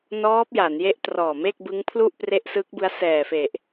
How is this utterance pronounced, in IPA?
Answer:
n ɔː˦˥ p̚ j a˩˦ n j e˦˥ ʔ t r ɔː˨˩ m e˥˩ k̚ b ɯ˦˥ ŋ pʰ l u˥˩ ʔ p r e˦˥ ʔ s ɯ˦˥ k̚ b ɯ˦˥ a̯ s ɛː˨˩ f e˨˩ ʔ

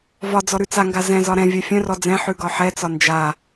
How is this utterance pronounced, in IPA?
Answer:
v ɒ d͡z ɔ ɾ ʉ t͡s a ŋ ɡ a z ɛ̃ z ɒ ɾ ɛ̃ vʲ œ fʲ œ̃ r ɔ d͡z ɛ̃ ħ ʉ ɡ ɒ ħ ɛ t͡s ɒ n d͡ʒ a

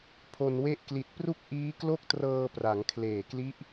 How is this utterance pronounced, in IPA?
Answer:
pʰ o˧ n w e˥˩ ʔ k l i˨˩ t̚ p r u˥˩ k̚ ʔ iː˦˥ k l o˥˩ k̚ t r ɤː˧ p r a˩˦ ŋ kʰ l eː˨˩ k l i˦˥ ʔ

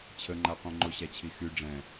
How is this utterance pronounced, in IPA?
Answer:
t͡ɕʰ ə ŋ͡ǃ a qʷ ɛ̃ ŋ͡ǃ o ɕ a t͡ɕʰ i x y ɖ͡ʐ ɛ̃

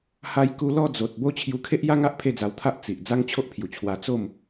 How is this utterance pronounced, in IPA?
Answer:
h a˧ j k u˧ l ɔ˥˧ d͡z o˨ t̚ b o˦ t͡ɕʰ j u˧ kʰ e˦ ʔ j a˦ ŋ a˦ ʔ pʰ e˥˧ d͡z a˧ w t̪ʰ a˦ ʔ t͡s i˨ ʔ d͡z a˦ ŋ t͡ɕʰ o˦ ʔ pʰ j u˨˩ t͡ɕʰ w a˧ t͡s o˥˧ m

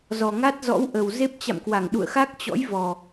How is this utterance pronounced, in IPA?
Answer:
z ɔ˨˩ ŋ a˦˥ t̚ z ɔ̰˧˥ w ʔ ə˨˩ w z e˦˥ p̚ t͡ɕ a̰˧˨ m k w a˧˩ ŋ ɗ ṵ˧˨ ə̯ x a˦˥ k̚ t͡ɕ ɔ̰˧˥ j v ɔ˨˩

